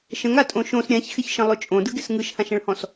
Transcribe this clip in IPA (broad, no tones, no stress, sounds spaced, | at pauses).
ʃ ə̃ ŋ a tʼ õ ʃ õ s ɾʲ ã ç x ɪ ç ʃ ə̃ lˠ ɵ t͡ʃʼ õ d ɯ ɡ ɪ s ŋ ɯ ʃ h ã ʃ ə̃ ɭ h ɔ̃ s